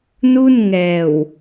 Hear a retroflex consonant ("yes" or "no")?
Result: no